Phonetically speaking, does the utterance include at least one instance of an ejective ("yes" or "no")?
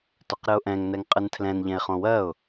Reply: yes